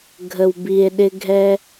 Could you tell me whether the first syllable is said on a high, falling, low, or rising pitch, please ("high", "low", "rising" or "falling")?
low